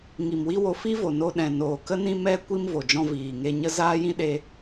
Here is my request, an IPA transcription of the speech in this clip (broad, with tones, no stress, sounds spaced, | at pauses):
ŋ i˨ m w i˦ w o˧ f i˦ v o˨ n o˧ ɗ ɛ̃˨ n oː˨ k ə˦ n ĩ˦ m ɛ˦ kʷ i˦ m v o˨ d͡ʒ ɔ̃˧ v iː˨ ŋ e˧ ɲ ə˦ z aː˦ j ĩ˦ ɗ e˦